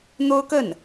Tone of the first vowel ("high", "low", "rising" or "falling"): high